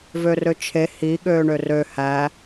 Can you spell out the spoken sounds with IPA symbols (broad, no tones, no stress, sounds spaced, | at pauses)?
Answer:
v ø r ø t͡ʃʰ e h i ɠ øː ɳ ø r ø h æ